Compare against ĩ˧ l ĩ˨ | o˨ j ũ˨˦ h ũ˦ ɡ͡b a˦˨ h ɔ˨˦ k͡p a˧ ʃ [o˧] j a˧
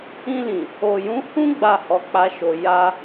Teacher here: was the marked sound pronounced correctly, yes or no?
no